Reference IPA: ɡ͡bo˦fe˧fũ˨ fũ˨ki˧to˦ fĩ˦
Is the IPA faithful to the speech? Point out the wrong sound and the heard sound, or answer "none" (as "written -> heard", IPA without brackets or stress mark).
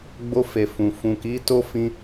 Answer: i˧ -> i˨˦